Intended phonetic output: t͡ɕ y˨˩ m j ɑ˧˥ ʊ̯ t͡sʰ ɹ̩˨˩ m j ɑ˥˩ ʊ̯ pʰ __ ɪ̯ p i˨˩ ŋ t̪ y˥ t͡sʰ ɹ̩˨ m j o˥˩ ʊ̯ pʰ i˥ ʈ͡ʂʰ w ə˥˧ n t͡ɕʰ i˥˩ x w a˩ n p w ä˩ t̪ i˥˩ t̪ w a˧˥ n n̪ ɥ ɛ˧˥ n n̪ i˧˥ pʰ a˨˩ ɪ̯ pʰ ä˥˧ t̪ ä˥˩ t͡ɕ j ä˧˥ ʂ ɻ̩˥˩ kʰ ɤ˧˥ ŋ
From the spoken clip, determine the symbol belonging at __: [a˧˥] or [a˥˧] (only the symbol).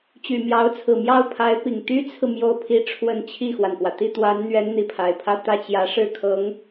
a˧˥